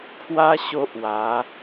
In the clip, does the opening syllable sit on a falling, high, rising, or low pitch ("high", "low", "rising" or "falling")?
high